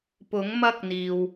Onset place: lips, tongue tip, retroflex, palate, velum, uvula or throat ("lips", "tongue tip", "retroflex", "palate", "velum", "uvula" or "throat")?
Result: lips